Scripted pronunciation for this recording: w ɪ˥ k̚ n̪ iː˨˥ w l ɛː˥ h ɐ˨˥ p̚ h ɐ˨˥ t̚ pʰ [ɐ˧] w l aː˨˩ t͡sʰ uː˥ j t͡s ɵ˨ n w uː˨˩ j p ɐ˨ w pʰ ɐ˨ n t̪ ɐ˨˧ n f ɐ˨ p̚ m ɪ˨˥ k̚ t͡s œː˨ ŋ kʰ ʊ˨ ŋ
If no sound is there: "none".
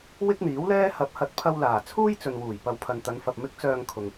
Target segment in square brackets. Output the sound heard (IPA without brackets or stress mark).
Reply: ɐ˧